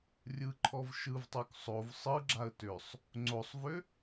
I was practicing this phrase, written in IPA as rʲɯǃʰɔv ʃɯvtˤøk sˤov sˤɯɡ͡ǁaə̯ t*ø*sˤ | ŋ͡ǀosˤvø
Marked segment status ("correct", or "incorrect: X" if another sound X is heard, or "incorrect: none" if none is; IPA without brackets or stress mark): correct